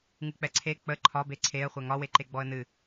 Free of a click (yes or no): no